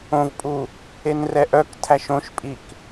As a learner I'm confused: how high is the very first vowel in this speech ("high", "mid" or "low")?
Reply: mid